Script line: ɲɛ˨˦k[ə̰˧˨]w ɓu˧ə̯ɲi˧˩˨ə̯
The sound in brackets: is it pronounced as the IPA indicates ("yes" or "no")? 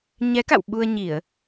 no